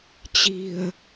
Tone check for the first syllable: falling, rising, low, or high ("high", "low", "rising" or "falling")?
low